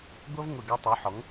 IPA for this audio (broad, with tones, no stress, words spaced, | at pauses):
ɡʷʌ˥v ŋʷɪ˦˨ɡʌ˥tˤu˨˥ħɔ˨˥ŋ